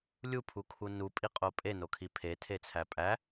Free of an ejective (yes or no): no